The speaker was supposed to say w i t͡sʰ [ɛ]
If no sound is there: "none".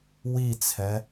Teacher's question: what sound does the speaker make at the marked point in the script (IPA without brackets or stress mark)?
ɛ